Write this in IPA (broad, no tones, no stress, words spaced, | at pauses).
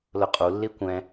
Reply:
lʊqʼu lːikʷɛ̃